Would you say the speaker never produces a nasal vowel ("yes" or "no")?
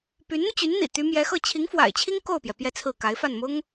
yes